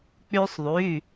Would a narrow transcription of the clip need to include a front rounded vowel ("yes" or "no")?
yes